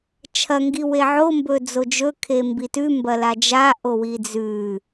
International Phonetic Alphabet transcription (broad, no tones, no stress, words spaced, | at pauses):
t͡ʃʰɐŋɡi weʕombɵ d͡zod͡ʒɵkʰe mbitʉmbɐ lad͡ʒa ʔowid͡zʉ